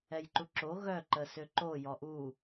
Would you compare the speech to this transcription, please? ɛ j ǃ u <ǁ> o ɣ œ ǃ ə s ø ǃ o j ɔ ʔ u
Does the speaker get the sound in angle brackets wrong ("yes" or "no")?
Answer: no